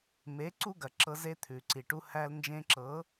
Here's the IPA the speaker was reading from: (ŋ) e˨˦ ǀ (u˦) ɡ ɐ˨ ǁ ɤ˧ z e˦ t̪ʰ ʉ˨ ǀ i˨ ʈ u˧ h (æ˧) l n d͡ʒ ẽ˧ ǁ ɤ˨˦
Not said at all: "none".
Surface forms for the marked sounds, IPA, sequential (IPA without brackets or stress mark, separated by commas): m, u˦, æ˧